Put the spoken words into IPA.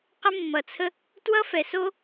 q ə˥ mː ʌ˧ t͡sʰ ə˥ | t w ʌ˥ f ɛ˧ s o˥

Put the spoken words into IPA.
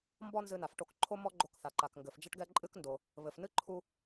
m b ɔ˥ n z ɨ˧ n a˩ f ʈ o˧ k ǃʰ o˥ m ɔ˥ ɡ͡ǃ o˧ k θ a˩ ǃ a˩ k ŋ ɡ ɘ˩ f d͡ʒ ɐ˥ ʈ ɡ ɛ˥ ǃʼ ɨ˥ k n d o˩ | β ɘ˩ f n ɨ˥ ǃʰ u˧

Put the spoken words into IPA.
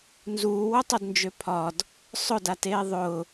n z uː w ʊ tˤ o d n d͡ʒ ø pʰ ɒ d | sˤ ʊ d a t eː ðˤ ʊ

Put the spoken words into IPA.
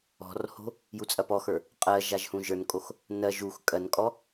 ɔ̤ r h o̤ | j u t͡sʼ ɐ p ɔ x ə˞ | qʼ ɜ ʒ a ʒ h ũ ʒ ə˞ n kʼ o x | n ɜ ʒ u x kʼ ɜ n kʼ ɔ

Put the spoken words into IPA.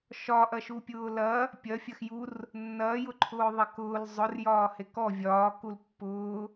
ʃ ɒ ʔ ɐ ʃ u pʲ ʊː l ɐ | pʲ ɐ fʲ ɐ x j u r | nː ɐː j ʊ ǃʰ ʊː ðˤ ɐ k ʊː l zˤ ʊ r j ɒː h e k ɔ vʲ ɒː k u l pː ʊː

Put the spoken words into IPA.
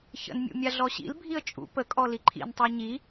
ç ə̰ n mʲ ṵ mʲ a ɮ ɔ ɕ ḭ l bʱ i ə̯ t͡ʃʼ ṵ p ə kʼ ɔ l i ǃʰ ḭ n tˤ a ɲ i

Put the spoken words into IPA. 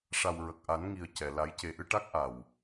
ʂ a˨˩ w ɹ ə˨˩ k̚ ʔ a˨˩˦ n ŋ i˨˩ ə̯ c ɛ˨˩ l a˨˩˦ j c e˨˩ ʔ ɨ˧ ʈ a˦˥ k̚ ʔ a˨˩ w

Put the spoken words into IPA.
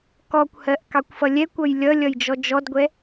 k ɔ kʷ h ɜ ʔ k ɑ kʷ f ʌ lʲ ɛ kʷ ʌ j lʲ ʌ lʲ ʌ j d͡ʒ ɔ d͡ʒ ɔ d ɡʷ ɛ

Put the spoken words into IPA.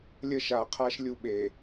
lʲ ə˦ ʃ aː˨ qʰ a˦ ʃ lʲ u˦˨ ɓ e˨

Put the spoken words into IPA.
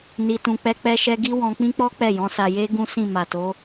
n i˨ t ũ˨ k͡p ɛ˧ k͡p ɛ˦ ʃ ɛ˦ ɡ i˦ w ɔ̃˧ k͡p ĩ˦ k͡p ɔ˦ k͡p ɛ˦˨ j ɔ̃˨˦ s a˧ j e˦ ɡ ũ˦ s ĩ˦˨ m a˨ t o˨˦

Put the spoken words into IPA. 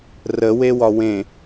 r ə w e w ɒ w ẽ

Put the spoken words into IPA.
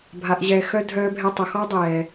bʱ a˧ ʔ ʑ ɛː˧ x œ˦ dʱ œː˧ bʱ ɛ˧ tˤ ʊ˨ x ɔ˦ dˤ ɛː˨

